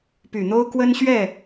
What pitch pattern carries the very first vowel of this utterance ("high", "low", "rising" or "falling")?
low